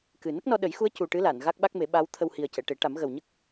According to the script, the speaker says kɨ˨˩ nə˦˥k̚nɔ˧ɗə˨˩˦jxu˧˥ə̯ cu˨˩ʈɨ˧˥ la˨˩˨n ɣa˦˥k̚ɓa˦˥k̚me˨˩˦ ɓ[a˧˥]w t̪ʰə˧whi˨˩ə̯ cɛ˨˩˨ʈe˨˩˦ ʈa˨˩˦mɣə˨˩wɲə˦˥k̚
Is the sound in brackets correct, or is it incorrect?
correct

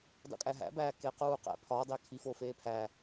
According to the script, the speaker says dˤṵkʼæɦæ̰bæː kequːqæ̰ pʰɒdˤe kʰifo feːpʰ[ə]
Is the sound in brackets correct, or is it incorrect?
incorrect: æ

